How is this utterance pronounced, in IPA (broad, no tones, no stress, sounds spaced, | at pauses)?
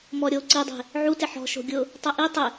m ɔ ɾʲ o ǀ i dˤ e̤ | ʕ u t ɪ ħ ɔ̤ ʃ o̤ ɡʲ ʊ | tˤ ɛ ʔ i tˤ ɪ